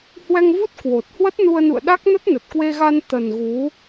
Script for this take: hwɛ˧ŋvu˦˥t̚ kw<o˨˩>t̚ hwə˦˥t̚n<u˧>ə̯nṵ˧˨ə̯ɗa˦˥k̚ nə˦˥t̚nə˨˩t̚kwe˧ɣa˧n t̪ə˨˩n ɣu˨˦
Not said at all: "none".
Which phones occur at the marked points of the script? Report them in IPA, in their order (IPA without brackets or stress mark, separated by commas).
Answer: o˨˩, u˧